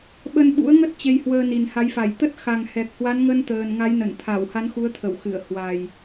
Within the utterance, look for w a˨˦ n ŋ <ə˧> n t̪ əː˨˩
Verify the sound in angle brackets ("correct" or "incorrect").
correct